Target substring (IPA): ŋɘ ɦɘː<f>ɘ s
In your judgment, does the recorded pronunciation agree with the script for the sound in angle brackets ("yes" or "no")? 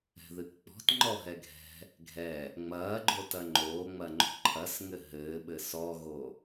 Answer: no